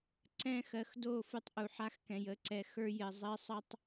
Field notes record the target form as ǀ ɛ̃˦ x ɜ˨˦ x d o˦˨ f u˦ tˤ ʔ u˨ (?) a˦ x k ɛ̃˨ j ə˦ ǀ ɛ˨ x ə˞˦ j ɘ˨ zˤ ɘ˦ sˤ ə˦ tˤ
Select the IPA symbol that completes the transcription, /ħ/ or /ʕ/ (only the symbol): ħ